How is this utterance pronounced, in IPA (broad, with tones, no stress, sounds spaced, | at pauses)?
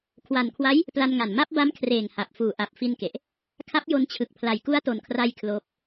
kʰ w a˨˩ n kʰ w a˦˥ j | p l a˧ n ŋ a˨˩ n m a˦˥ p̚ b a˦˥ m kʰ r eː˨˩ ŋ h a˨˩ p̚ f uː˨˩ ʔ a˨˩ p̚ f i˧ n k e˨˩ ʔ | kʰ a˦˥ p̚ j o˧ n t͡ɕʰ ɯ˨˩ k̚ pʰ l a˨˩ j k u˦˥ a̯ t o˨˩ n kʰ r a˧ j kʰ l oː˦˥ p̚